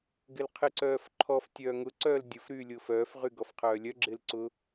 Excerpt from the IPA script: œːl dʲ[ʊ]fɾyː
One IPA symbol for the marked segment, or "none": ʊ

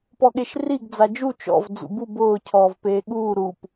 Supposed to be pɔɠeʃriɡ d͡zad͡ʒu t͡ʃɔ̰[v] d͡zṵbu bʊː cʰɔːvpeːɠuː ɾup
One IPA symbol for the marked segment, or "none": v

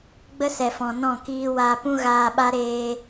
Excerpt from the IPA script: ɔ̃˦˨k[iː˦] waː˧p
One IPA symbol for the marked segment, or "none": iː˦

